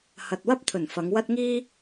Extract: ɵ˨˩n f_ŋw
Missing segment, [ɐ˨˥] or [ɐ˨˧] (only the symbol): ɐ˨˧